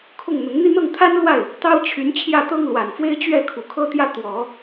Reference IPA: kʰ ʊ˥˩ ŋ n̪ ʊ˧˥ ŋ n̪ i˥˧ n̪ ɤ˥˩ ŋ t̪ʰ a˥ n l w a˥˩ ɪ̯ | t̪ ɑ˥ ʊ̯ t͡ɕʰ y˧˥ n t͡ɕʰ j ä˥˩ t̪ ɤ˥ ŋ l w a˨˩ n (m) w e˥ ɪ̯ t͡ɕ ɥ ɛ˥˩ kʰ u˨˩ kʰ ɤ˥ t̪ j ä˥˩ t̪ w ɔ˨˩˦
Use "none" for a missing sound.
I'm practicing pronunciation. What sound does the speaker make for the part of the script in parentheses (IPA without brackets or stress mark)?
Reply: f